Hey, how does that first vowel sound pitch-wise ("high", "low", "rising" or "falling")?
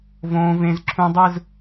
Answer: high